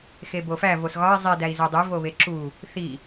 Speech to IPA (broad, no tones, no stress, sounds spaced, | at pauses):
x e b o f æ v o s ɣ ɒ i̯ zˤ i d æ i̯ z e dˤ i v o β e ǁ u | θ i